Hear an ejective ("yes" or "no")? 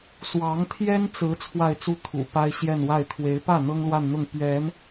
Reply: no